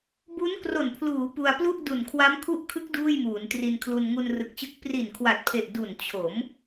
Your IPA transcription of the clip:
b u˦˥ n k r o˨˩ n pʰ l uː˩˦ p u˧ a̯ p l u˥˩ ʔ d u˨˩ n kʰ w a˦˥ m kʰ u˦˥ ʔ kʰ ɯ˦˥ k̚ d uː˥˩ j m uː˩˦ n t r i˧ n kʰ l u˧ n ŋ u˧ n r ɯ˨˩ k̚ t͡ɕ ɯ˦˥ k̚ p r i˨˩ n kʰ w a˨˩ t̚ pʰ e˨˩ ʔ d u˨˩ n t͡ɕʰ o˩˦ m

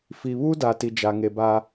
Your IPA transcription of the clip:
f i˨ β u˦ d a˨ t i˨ d͡ʒ a˨ ŋ e˨ b a˦

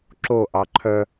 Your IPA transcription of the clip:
ǁ o ʔ ɑ ǃʰ œ

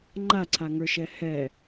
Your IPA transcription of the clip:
ŋ͡ǃ a ǀʰ a ŋ ə˞ ʃ ɛ h ɛ

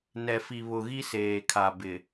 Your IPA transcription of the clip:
n ɛ˨ f i˨ β ʊ˨ ɣ i˦ s eː˨ kʰ a˨ b ɪ˨

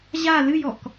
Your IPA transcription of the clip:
ʑ a l ɨ j ɔ k

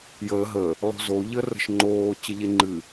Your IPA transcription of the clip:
j əː ɦ ə | lˠ o̤ z o ʎ ə r ə̤ ʃ ŋ͡ǃ oː t͡ɕ ə ʎ e ŋ͡ǃ ɨ

